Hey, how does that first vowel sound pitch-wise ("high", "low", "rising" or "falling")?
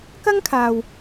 high